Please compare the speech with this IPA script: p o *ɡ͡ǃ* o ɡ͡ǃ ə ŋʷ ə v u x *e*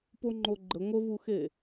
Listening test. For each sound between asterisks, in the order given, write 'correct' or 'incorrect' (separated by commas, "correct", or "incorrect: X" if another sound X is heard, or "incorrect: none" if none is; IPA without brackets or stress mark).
incorrect: ŋ͡ǃ, correct